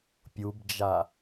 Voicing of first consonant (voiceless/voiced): voiceless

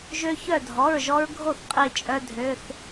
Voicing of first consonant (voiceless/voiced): voiced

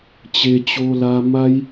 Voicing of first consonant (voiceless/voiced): voiceless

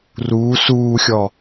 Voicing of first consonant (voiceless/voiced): voiced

